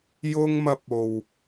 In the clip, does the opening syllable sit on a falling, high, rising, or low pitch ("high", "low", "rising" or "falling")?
high